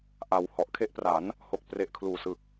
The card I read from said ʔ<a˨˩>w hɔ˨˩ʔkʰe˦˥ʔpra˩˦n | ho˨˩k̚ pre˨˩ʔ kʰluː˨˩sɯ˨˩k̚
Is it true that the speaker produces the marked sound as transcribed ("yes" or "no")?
no